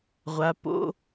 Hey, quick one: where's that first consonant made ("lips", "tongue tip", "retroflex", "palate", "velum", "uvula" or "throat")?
uvula